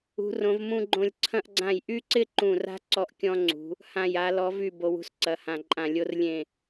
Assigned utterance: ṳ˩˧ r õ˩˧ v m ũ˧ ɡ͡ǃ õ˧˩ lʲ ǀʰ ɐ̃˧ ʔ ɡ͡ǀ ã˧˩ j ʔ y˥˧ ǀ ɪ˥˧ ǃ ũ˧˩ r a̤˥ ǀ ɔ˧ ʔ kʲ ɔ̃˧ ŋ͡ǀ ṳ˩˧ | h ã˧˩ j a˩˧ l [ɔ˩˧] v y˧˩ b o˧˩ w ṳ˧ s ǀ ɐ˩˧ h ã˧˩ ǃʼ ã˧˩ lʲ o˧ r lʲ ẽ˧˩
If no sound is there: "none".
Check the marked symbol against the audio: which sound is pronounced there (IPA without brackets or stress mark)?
ɔ˩˧